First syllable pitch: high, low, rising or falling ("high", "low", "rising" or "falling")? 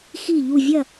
falling